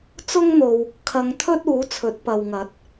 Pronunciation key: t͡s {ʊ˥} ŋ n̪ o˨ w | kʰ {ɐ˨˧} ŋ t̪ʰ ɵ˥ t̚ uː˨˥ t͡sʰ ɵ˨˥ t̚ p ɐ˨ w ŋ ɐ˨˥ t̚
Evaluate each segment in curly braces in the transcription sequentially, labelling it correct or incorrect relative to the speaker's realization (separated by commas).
correct, correct